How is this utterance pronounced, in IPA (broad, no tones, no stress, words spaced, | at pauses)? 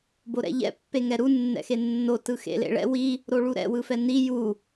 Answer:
boɾɛ̰ʎɛ̰ pːeŋɛɾu nːɛ̰xenːo tɯxḛlḛɭɛ̰ wi | ɾoɭuɾɛ̰ wɯfɛni ju